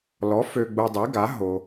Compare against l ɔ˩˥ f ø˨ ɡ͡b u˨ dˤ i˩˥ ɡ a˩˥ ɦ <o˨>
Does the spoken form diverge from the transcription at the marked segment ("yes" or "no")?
no